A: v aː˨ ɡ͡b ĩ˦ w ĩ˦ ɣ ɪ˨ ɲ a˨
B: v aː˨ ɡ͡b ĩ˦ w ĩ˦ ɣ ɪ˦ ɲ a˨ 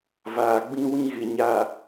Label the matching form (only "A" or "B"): A